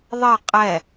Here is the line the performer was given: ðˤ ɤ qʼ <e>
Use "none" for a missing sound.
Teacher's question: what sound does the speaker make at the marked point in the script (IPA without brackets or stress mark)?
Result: ɛ